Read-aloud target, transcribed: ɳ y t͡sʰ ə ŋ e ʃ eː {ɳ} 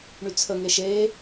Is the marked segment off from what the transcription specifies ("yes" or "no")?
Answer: yes